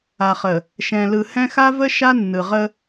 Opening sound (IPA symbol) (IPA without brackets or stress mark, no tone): a